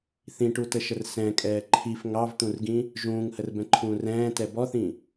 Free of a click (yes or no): no